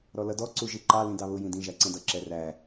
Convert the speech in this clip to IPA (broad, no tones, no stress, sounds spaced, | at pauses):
ɾ ɔ l ʌ d ɔ ǀ u ʒ i ǃ ɑ l ĩ d ɑ β ʊ j ĩ d ĩ ʒ æ ǀ ɛ̃ d ʌ ǁ ɛ r æ